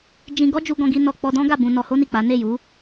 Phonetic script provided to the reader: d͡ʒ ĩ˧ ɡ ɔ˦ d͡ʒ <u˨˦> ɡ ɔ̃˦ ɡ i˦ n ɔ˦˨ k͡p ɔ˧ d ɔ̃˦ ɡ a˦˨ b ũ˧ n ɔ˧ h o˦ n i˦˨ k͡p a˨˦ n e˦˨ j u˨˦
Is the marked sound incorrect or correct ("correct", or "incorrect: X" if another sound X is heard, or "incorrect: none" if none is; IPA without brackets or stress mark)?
incorrect: u˦